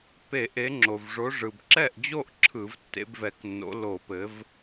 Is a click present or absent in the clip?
present